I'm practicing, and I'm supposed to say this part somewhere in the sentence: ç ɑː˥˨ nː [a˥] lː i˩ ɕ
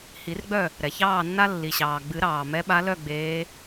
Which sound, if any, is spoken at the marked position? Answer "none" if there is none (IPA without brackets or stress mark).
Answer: a˥